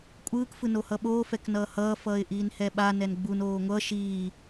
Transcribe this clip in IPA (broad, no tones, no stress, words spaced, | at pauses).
kʷʼɯːk fɯnohʌɓoː fɛknʌːhʌː fʌːɪ̯ʔiːnhɛɓa nɛnɡ͡bun oːŋʷʌ ʃiː